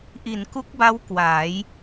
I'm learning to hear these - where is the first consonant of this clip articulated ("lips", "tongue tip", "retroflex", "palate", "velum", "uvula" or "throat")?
throat